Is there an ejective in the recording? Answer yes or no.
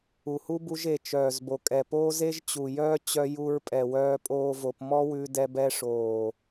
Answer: yes